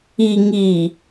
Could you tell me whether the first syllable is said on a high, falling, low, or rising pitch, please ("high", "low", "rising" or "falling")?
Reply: low